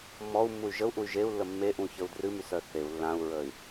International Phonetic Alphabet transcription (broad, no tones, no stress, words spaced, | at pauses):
mɔu̯mːuy̯ ʒəu̯ʔuy̯ ʒeu̯lːə mːeʔũçəu̯ drɨmysœ θeu̯ lːãu̯ɹəy̯